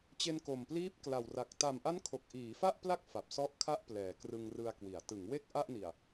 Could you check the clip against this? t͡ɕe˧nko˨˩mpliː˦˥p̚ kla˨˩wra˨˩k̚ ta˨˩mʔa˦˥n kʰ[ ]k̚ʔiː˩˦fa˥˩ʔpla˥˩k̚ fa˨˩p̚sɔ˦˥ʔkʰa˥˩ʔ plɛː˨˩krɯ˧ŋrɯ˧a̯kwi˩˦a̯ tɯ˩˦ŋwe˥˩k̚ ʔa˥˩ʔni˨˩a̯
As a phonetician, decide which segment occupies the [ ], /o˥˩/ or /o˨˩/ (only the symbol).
o˨˩